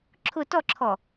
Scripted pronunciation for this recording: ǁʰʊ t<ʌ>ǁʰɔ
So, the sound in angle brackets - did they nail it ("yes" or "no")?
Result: no